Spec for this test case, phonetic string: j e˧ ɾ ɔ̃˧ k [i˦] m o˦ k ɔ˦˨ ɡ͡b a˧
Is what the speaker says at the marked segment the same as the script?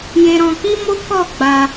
yes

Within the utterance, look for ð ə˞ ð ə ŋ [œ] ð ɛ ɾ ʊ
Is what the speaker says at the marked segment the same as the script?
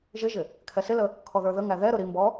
no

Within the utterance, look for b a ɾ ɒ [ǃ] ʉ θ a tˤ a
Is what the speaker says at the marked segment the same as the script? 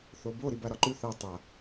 yes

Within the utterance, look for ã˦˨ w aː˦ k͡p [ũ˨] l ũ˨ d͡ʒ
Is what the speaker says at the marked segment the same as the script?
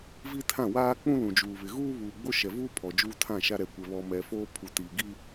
no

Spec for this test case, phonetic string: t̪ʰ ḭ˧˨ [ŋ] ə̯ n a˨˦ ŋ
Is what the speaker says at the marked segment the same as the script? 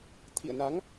no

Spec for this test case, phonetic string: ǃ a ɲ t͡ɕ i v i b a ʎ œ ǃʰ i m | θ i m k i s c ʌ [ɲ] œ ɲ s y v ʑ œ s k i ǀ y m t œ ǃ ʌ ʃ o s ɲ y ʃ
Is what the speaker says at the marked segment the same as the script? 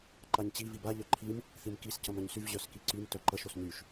no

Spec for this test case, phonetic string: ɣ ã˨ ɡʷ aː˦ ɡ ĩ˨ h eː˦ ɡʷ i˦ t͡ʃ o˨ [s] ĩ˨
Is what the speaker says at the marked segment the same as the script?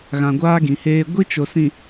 yes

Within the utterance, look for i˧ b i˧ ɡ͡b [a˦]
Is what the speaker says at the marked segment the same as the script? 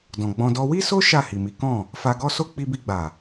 no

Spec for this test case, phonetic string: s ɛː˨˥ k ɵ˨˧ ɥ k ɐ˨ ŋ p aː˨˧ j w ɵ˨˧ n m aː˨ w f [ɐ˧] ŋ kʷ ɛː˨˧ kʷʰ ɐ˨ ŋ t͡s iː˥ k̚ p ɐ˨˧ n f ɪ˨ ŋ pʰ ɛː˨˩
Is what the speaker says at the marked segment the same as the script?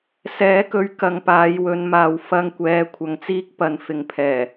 yes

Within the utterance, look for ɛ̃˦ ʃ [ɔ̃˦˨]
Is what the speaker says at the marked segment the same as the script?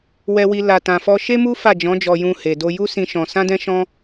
no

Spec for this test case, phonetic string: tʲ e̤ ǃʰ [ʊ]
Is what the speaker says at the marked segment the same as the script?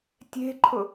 yes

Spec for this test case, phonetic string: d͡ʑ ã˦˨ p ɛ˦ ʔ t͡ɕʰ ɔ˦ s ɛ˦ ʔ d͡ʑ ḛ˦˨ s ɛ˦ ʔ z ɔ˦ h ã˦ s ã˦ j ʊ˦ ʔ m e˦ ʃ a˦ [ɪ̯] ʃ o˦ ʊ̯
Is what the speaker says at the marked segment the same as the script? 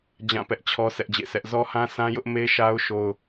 no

